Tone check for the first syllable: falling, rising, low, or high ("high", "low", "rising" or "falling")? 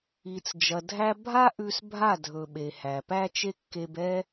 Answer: low